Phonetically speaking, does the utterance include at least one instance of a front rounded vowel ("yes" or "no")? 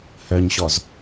yes